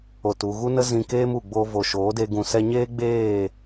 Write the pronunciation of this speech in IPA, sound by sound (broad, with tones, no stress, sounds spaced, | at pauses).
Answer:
o˨ t u˨ ɣ u˦ n ə˦ z ĩ˧ k eː˦ m u˨ ɡ͡b o˧ v o˨ ʃ oː˨˦ d e˧ ɡ ũ˨ s ɛ˧ ɲ eː˦ ɡ͡b eː˦˨